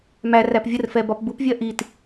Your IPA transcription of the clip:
m æ r æ p vʲ ə r f ɛ b ɒ p b u p vʲ ɜ ʔ i t

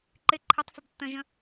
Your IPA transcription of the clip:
ǃ ɪ ǃʰ ɪ tˤ f ɪ b tː ə̃ ʒ ə̃

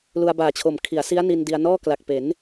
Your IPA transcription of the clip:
l u˧ a̯ b aː˨˩ t͡ɕʰ o˨˩ m kʰ i˩˦ a̯ s i˦˥ a̯ n i˧ n d i˧ a̯ n ɔː˥˩ k l a˨˩ k̚ p e˩˦ n

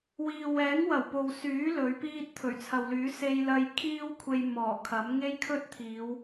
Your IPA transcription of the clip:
w iː˨ w ɛː˨˥ ŋ w ɐ˨˩ w p o˨ w s yː˨˥ l ɵ˨˥ ɥ p iː˥ t̚ t̪ʰ ɵ˨˩ ɥ t͡sʰ ɐ˨ w l yː˨˥ s e˧ j l ɐ˧ j kʰ iː˥ w kʷʰ e˧ j m ɔː˨˩ kʰ ɐ˨˥ m ŋ e˥ j kʰ ɵ˥ t̚ t̪ʰ iː˨˧ w

